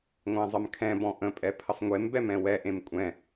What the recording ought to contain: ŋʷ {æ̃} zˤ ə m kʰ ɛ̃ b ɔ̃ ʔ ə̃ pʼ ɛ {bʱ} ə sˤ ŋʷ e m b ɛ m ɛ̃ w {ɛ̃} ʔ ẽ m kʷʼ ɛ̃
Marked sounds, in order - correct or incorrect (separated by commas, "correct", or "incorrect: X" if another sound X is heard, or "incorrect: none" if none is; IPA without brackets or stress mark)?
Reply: correct, incorrect: pʰ, incorrect: ɛ